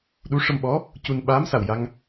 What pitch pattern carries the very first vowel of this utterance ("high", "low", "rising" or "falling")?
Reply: rising